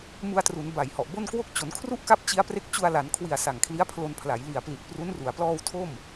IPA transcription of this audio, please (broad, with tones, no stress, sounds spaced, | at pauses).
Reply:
m u˧ a̯ t r u˩˦ n b a˨˩ j h ɔ˨˩ ʔ b o˥˩ n k w o˥˩ k̚ t͡ɕ o˩˦ n kʰ r u˥˩ ʔ k a˦˥ p̚ t͡ɕ i˦˥ a̯ p r e˦˥ k̚ t͡ɕ u˧ a̯ l a˩˦ n kʰ w i˨˩ a̯ s a˨˩ ŋ kʰ l i˦˥ a̯ pʰ l o˧ n pʰ l a˩˦ j l i˨˩ a̯ p l i˨˩ t̚ p r u˦˥ n r u˩˦ a̯ p l ɔː˧ w tʰ o˥˩ m